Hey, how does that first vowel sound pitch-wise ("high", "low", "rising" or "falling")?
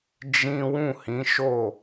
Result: high